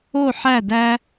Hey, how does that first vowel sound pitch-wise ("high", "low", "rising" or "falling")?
falling